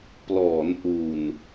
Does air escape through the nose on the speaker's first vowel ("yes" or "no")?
no